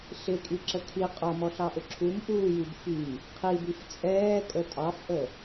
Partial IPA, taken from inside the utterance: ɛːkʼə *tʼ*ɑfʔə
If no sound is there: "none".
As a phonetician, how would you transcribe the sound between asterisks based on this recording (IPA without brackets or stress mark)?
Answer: tʼ